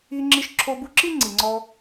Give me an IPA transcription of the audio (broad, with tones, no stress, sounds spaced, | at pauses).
i˧ ŋ͡ǁ i˧ ʃ ǁʰ o˧ b u˧ ǁ i˦ ŋ͡ǀ i˨ ŋ͡ǀ ɔ˧